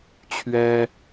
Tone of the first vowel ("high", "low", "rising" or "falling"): high